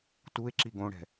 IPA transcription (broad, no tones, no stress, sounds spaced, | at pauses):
t u e̯ ǁ i ɡ õ ɽ ɛ̤